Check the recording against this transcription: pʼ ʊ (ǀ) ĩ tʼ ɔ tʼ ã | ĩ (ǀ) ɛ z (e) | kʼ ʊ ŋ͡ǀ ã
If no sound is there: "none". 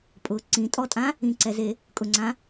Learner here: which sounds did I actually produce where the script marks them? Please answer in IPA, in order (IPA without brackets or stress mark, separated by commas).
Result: ǀ, ǀ, e